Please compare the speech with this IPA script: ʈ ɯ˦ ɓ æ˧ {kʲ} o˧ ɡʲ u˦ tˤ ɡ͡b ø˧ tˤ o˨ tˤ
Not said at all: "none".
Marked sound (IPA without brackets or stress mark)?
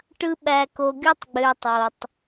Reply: k